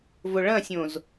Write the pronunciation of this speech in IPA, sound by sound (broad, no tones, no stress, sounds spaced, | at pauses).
v ʊ ɭ ɐ̃ sʲ õ z